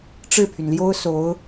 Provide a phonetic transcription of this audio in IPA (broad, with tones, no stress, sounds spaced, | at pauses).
ʈ͡ʂ ɻ̩˥˩ pʰ y˩ n l j o˥ ʊ̯ s o˧˥ ʊ̯